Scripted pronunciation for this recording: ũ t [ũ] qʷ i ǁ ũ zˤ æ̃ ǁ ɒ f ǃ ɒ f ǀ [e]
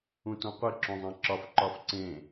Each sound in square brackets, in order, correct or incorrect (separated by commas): incorrect, incorrect